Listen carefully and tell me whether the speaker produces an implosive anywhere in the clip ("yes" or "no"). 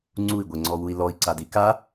no